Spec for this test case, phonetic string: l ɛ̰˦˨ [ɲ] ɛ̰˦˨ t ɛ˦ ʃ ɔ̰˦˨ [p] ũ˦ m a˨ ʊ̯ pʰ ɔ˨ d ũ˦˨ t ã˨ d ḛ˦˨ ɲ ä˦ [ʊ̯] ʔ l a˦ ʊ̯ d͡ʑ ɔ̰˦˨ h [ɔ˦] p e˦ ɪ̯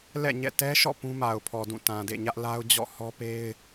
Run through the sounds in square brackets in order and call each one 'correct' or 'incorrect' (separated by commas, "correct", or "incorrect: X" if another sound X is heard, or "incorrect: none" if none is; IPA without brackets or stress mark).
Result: correct, correct, incorrect: none, correct